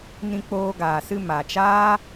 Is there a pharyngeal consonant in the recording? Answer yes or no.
no